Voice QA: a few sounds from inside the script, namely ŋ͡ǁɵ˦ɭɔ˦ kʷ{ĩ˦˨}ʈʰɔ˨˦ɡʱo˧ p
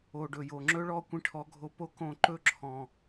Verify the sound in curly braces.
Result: incorrect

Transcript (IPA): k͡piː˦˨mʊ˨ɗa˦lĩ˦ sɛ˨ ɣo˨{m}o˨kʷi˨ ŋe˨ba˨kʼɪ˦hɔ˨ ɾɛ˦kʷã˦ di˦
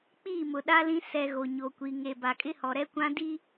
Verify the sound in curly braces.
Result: incorrect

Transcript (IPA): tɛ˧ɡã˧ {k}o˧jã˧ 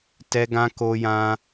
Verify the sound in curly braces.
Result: correct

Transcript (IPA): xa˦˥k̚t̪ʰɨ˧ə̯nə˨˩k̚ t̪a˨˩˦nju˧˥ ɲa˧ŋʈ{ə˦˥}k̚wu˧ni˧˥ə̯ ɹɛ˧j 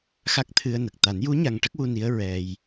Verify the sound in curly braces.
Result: correct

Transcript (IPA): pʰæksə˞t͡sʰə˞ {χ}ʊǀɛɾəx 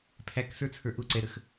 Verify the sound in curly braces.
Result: incorrect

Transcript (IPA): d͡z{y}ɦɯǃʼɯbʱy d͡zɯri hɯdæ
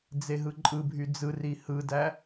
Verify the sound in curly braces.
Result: incorrect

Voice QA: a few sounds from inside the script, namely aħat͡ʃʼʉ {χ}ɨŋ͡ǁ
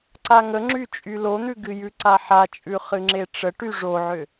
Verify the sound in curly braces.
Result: correct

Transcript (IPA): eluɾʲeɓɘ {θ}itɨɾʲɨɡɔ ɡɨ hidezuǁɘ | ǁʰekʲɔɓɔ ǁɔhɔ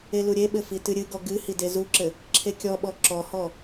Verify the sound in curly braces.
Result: incorrect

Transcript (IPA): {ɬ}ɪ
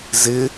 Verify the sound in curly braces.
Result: incorrect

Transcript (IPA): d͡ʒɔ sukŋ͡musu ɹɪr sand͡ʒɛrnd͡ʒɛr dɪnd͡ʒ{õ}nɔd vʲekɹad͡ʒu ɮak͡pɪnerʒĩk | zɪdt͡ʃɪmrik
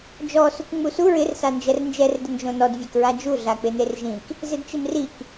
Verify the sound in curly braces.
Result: correct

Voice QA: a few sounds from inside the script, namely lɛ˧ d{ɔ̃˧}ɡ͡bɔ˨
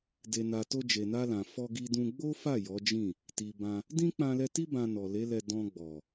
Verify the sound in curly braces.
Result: correct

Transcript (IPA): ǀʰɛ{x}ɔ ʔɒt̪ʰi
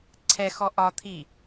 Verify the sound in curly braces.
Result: correct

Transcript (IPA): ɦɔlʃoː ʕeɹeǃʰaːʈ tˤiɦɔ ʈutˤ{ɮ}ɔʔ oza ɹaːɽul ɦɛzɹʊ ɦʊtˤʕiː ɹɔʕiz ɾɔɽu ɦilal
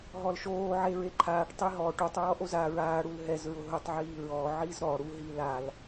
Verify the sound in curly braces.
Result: incorrect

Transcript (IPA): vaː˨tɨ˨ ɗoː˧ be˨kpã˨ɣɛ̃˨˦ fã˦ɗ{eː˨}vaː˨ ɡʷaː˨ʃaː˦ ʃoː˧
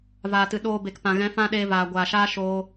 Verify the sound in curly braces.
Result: incorrect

